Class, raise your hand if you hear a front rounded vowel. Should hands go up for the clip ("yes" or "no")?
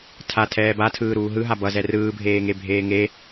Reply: no